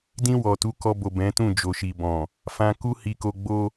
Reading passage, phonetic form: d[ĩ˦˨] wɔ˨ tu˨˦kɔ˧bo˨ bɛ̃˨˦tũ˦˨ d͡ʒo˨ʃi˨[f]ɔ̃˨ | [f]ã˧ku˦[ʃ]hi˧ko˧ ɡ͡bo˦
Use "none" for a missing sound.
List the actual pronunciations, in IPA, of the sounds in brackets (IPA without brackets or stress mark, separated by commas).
ĩ˧, b, f, none